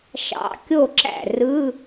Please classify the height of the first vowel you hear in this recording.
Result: low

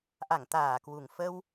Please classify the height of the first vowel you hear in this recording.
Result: low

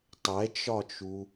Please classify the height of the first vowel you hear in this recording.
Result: mid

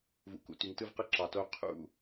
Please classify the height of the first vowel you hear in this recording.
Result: high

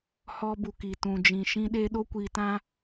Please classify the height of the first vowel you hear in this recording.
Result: mid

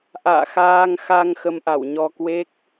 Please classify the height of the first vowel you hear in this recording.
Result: low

